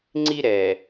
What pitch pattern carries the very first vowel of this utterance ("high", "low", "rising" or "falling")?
high